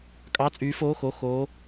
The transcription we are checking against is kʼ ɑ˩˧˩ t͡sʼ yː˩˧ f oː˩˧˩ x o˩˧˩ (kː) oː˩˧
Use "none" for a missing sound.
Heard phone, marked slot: x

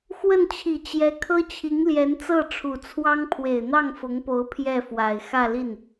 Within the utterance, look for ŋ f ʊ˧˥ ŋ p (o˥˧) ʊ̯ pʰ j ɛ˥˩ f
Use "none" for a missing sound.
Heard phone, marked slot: o˧˥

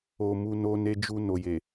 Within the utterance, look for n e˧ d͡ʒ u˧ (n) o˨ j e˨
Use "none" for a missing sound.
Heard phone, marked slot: n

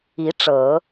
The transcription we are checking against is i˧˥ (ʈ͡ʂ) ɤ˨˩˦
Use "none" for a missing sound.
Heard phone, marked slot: ʈ͡ʂ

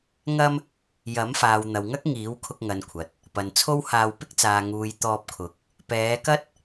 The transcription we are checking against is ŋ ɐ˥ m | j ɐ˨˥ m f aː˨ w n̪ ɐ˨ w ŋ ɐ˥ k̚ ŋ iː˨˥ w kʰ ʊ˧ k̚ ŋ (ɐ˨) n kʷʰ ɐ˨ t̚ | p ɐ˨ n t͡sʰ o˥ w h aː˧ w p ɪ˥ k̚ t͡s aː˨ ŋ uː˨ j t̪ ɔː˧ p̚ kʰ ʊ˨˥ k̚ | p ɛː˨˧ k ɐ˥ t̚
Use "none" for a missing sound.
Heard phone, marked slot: ɐ˨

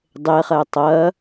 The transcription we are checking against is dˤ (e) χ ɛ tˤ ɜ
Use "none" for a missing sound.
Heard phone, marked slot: e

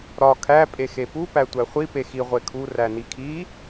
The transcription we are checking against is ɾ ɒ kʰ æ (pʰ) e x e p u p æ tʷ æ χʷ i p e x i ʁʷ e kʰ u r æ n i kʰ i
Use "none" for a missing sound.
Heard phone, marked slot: pʼ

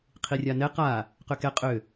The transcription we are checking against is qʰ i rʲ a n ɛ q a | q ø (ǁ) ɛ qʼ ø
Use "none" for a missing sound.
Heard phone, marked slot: k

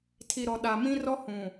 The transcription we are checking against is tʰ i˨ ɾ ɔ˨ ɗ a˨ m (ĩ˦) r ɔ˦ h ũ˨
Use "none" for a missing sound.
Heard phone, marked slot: ĩ˦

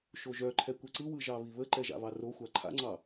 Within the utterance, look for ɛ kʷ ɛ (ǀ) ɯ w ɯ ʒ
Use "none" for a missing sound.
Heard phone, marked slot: ǀ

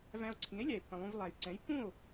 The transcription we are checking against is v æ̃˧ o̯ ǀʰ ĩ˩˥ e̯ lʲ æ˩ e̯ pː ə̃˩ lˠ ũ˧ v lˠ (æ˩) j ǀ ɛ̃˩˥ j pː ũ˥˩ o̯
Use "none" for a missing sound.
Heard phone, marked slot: æ˩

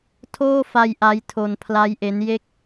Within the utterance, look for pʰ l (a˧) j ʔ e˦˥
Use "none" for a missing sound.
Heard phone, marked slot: a˦˥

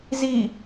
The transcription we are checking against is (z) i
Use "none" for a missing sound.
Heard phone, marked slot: z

